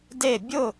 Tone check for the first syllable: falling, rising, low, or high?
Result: falling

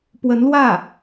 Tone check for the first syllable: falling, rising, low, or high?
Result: rising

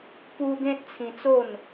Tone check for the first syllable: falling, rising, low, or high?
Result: high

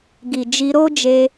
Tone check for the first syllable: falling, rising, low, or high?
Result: low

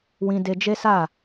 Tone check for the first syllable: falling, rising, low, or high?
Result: high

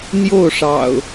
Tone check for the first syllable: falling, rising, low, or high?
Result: falling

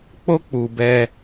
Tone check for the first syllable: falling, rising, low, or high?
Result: high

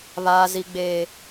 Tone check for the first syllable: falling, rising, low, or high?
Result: low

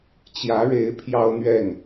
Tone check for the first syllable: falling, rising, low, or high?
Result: rising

